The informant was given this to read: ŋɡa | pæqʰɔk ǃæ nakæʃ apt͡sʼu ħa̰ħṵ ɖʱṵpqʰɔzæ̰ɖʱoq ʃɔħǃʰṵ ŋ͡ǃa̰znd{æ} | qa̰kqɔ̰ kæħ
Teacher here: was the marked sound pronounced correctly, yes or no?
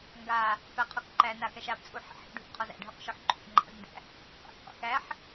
no